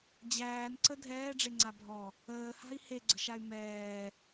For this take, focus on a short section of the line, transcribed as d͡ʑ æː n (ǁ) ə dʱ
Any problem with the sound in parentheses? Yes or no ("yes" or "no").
yes